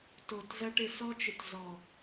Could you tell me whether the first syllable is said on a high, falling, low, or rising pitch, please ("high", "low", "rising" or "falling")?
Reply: low